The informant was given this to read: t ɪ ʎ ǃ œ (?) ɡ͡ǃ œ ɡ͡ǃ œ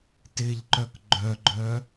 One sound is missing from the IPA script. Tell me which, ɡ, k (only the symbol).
k